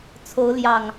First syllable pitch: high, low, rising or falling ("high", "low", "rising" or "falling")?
rising